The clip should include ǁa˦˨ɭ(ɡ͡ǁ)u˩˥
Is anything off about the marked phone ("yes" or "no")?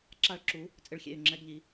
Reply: yes